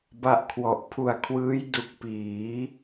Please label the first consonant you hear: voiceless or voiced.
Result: voiced